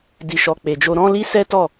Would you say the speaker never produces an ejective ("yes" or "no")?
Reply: yes